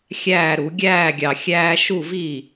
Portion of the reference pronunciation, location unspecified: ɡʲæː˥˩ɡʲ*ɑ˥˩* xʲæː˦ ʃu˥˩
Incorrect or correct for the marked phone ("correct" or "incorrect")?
incorrect